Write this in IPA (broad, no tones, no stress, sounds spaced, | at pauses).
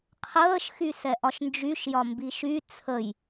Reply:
qʰ əː ʃ x y s ɛ ʔ ɒ ʃ n d͡ʒ y ʃ j ɒ m b i ʃ y t͡sʰ ə j